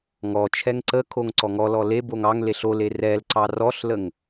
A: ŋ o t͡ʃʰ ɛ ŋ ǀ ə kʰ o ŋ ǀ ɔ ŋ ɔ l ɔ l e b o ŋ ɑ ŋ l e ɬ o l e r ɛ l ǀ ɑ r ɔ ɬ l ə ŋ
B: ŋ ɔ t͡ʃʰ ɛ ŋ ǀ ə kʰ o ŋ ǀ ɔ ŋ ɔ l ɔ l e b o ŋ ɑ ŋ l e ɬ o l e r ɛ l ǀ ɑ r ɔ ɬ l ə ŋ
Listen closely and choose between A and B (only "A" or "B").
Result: B